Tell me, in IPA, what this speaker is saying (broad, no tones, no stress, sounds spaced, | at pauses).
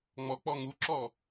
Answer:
ŋ͡m ɔ k͡p ɔ ŋ u ǁ ɔ